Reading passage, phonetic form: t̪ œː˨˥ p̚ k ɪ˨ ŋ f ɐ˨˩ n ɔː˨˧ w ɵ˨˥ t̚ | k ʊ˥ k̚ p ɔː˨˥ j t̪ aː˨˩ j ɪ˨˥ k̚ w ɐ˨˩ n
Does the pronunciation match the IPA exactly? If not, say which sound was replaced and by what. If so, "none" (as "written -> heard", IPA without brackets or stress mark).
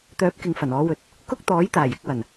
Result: p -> t̪